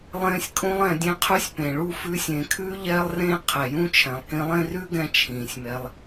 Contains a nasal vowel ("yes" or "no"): yes